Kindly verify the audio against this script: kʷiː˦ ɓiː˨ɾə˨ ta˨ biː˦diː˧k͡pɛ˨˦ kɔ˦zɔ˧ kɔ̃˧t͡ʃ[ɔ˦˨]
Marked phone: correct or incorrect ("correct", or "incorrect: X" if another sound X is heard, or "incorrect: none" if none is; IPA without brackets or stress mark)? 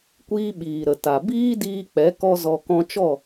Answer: correct